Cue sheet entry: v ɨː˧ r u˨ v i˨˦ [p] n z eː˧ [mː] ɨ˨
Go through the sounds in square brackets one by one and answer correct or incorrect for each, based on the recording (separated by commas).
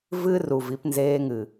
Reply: correct, incorrect